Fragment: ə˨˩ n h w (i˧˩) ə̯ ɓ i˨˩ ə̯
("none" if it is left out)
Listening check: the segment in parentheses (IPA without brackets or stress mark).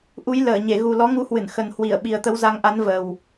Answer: i˧˩